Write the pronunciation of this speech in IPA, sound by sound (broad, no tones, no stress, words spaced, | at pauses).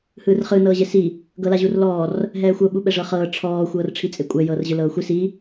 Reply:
hɯːrχɯ nɤːʑesi | ɡɤlaʑurlɔːr | ɦɛːxʷɤ ɓuɓɛʐɤχɤː ʈ͡ʂʰɔː xʷɤːrʈ͡ʂʰit͡sʼekʷʼɛ jɤːrʑɯlɤːxʷi si